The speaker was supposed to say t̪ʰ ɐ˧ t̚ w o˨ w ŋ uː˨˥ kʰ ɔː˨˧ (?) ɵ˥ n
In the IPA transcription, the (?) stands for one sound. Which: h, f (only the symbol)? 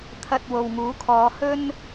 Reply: h